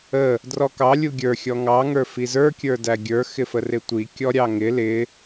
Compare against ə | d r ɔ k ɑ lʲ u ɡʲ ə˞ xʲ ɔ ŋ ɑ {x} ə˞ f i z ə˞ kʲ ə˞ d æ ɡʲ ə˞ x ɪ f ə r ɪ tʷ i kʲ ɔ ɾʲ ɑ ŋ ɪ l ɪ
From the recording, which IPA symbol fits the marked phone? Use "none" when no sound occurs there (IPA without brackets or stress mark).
ŋ